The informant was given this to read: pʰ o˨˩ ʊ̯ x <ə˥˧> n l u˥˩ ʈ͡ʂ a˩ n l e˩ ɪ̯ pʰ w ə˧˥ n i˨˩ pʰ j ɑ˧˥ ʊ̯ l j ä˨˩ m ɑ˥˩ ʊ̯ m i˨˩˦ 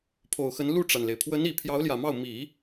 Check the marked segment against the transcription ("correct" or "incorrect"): incorrect